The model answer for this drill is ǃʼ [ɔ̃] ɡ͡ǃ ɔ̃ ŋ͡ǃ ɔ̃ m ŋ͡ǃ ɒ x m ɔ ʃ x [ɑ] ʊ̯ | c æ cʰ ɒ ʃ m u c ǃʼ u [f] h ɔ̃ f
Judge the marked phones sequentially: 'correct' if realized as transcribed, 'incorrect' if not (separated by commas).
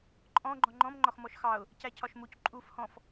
correct, correct, correct